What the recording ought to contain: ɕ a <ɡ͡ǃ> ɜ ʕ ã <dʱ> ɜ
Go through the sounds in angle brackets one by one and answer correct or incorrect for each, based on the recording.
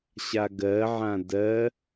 incorrect: ɡ, incorrect: d

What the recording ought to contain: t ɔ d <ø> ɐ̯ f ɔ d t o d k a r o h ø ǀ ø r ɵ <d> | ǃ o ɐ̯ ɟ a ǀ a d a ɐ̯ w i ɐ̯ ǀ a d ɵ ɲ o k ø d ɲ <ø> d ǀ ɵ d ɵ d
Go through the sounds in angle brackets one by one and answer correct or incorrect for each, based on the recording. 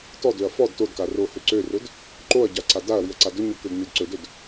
correct, correct, correct

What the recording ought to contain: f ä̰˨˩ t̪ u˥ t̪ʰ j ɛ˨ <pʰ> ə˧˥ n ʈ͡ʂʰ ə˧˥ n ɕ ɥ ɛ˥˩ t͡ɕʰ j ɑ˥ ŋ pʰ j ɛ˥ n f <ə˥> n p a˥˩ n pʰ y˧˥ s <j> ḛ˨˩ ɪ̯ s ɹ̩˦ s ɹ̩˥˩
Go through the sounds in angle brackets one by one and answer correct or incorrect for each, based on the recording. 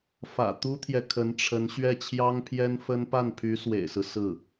incorrect: kʰ, correct, incorrect: w

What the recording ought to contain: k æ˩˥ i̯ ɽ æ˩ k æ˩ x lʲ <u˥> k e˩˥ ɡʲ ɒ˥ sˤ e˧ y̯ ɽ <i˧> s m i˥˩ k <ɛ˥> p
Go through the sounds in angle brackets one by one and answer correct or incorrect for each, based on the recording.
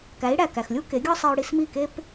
correct, correct, incorrect: e˥

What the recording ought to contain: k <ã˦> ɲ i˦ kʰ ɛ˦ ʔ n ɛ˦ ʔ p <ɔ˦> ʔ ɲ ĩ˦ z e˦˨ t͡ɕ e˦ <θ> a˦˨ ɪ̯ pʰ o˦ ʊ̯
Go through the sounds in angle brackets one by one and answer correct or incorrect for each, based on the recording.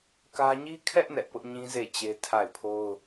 incorrect: ä˦, incorrect: ʊ˦, incorrect: tʰ

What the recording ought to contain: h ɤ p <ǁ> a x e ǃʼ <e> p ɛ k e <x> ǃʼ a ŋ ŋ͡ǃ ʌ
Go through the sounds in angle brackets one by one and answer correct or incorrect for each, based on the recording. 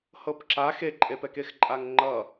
correct, correct, correct

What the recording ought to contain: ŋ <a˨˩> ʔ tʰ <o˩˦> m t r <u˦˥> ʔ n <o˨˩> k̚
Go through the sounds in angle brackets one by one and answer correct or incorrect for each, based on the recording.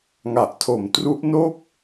correct, incorrect: o˨˩, correct, incorrect: o˥˩

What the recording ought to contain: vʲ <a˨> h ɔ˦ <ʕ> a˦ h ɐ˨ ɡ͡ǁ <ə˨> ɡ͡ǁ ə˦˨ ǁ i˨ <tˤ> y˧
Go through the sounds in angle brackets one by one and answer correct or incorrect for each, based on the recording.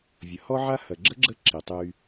incorrect: ɐ˨, correct, incorrect: ə˦, correct

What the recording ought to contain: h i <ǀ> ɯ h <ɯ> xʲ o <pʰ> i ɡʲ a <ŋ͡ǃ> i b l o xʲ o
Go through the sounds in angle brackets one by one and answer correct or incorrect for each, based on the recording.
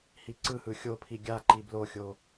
correct, correct, correct, incorrect: ǃ

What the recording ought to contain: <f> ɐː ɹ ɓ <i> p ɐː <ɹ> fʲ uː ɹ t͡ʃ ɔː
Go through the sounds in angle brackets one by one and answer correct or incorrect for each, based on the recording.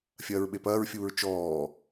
incorrect: fʲ, incorrect: e, correct

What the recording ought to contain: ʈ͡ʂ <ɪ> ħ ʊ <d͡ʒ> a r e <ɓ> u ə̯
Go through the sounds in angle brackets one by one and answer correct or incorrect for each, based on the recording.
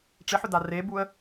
correct, incorrect: d, incorrect: b

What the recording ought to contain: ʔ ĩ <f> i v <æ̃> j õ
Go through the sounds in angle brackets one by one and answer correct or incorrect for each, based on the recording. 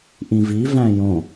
incorrect: v, correct

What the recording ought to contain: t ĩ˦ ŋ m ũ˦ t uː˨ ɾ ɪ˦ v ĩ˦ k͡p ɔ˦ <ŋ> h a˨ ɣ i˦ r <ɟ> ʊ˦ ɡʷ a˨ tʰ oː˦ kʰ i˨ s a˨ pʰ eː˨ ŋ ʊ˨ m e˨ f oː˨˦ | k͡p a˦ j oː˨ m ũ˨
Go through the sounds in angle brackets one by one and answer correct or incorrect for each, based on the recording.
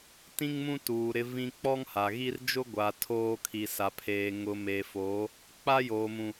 correct, incorrect: d͡ʒ

